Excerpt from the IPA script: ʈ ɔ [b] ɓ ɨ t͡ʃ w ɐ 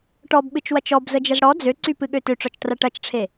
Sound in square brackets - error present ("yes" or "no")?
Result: no